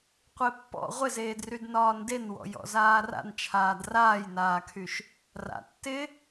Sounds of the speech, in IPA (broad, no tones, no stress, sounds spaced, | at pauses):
qʷ e pː ɔ̰ ʁʷ ɪ z eː d r y d n ɒː n d e n w ɔ̰ j ɔ̰ z aː r a̰ n t͡ʃʰ aː d r aː j n aː kʰ y ʃ | r a̰ tː ɪ